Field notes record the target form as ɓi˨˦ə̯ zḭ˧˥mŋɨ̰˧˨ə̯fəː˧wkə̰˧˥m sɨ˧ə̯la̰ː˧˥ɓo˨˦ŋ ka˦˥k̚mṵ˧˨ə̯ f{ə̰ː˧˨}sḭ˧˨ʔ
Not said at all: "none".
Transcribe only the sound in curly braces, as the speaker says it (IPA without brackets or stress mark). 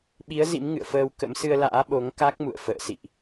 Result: ə̰ː˧˨